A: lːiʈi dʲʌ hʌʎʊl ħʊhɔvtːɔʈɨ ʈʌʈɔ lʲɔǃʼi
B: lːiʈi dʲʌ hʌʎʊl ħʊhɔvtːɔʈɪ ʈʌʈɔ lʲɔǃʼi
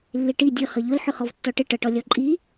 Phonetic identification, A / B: B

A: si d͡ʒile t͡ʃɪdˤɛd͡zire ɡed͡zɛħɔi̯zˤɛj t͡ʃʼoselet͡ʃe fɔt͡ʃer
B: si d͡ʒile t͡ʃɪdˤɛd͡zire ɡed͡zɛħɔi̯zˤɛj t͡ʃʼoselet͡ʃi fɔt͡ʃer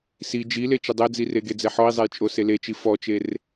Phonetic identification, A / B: B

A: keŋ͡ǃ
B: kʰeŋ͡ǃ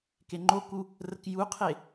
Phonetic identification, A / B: A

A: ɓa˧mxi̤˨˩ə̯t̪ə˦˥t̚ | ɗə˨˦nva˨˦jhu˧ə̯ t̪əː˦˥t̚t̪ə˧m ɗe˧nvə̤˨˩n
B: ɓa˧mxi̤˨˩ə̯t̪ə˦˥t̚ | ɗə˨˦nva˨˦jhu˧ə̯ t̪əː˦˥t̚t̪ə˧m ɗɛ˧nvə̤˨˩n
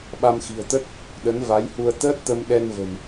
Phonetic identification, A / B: B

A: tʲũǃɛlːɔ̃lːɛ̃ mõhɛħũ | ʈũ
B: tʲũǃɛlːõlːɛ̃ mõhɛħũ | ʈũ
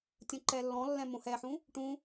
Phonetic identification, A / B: A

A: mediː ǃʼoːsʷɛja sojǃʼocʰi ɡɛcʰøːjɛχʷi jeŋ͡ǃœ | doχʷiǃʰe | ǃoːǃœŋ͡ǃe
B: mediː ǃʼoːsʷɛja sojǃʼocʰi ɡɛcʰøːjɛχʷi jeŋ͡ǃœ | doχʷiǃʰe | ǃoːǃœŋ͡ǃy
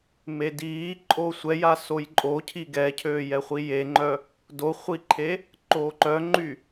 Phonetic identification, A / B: B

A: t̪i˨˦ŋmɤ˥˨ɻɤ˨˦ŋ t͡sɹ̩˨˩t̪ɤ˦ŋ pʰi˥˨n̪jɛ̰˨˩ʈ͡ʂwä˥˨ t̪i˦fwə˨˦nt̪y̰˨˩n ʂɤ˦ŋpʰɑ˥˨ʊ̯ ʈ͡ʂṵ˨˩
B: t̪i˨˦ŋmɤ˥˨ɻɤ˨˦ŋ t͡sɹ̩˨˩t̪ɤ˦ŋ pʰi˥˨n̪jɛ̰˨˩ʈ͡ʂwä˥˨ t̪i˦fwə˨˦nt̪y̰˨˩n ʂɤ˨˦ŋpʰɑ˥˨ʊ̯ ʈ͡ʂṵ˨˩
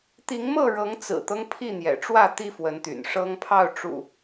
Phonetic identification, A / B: A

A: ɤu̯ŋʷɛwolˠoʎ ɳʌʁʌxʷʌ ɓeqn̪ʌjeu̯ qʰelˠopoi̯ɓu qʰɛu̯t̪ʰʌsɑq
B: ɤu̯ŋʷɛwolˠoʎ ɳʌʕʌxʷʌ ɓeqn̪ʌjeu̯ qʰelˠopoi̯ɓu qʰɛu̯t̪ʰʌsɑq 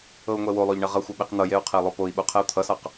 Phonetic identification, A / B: A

